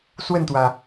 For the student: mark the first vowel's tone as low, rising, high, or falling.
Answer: falling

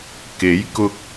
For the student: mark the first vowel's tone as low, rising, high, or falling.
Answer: rising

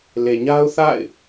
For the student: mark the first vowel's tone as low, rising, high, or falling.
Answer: low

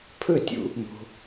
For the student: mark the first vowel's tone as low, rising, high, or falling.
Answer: falling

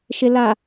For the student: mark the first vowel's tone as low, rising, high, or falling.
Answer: low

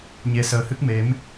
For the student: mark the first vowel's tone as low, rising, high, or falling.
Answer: rising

